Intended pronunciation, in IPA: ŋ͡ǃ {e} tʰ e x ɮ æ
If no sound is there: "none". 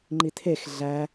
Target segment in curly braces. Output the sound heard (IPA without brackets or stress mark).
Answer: i